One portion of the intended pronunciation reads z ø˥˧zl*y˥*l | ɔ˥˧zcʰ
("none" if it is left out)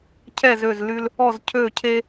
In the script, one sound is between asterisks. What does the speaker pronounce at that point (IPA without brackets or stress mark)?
y˥